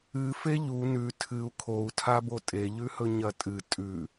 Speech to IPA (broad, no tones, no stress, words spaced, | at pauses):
ɨ feʎu nʉ tʰɨu̯ kʰou̯tʰa botʼeʎʉhɵ ɲɐtʼɨ tʼʉ